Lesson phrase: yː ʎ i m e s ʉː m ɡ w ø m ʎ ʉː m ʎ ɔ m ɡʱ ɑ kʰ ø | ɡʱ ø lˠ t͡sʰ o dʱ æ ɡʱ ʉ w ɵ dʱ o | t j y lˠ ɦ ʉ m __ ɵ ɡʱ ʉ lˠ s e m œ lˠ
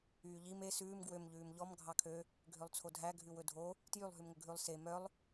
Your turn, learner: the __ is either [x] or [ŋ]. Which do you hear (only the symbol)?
ŋ